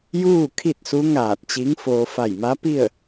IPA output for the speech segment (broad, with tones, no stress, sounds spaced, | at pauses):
j uː˥˨ kʰ i˥˨ t̚ s u˧˥ ŋ aː˧˩ t̚ t͡ɕ i˧˥ ŋ f oː˧ f a˧˩ j m a˧˥ p i˥˨ ə̯